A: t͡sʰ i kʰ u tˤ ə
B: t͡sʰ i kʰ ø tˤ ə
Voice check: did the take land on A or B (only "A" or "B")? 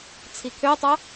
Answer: B